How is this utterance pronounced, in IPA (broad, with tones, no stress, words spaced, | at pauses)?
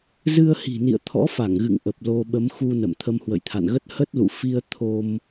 zɨ˧ə̯hi̤˨˩nḭ˧˨ə̯ t̪ʰɔ̰˧˥fa˧˩ŋɣɨ̰˧˨ŋ ʔə˨˩p̚ lo˧ɓə˨˦m xu˧nə̰˧˨m t̪ʰə˧mhwə̰˧˨jt̪ʰa̰˧˨nɣə˦˥t̚ hə˦˥t̚lṵ˧˨ fi˧ə̯ t̪ʰo˧m